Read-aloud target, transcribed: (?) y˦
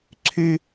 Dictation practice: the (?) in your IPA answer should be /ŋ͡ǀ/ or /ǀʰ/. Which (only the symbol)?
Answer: ǀʰ